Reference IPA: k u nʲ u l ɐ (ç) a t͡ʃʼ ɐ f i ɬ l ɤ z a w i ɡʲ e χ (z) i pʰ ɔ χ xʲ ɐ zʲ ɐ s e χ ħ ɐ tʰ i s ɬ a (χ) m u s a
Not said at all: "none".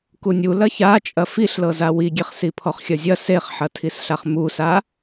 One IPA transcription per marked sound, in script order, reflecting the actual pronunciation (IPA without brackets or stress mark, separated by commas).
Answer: ç, s, χ